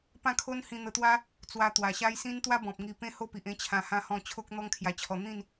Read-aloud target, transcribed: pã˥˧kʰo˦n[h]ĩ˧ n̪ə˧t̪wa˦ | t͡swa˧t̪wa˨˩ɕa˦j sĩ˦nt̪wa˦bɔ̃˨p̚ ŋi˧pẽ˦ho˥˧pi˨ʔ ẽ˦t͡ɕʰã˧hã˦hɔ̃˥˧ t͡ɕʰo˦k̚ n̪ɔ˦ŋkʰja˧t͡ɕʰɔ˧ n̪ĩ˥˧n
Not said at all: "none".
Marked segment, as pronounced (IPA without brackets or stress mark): h